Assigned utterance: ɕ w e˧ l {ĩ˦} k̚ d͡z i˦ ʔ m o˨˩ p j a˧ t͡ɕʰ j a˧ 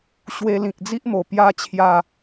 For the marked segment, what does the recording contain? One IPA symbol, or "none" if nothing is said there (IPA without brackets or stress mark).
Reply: ĩ˨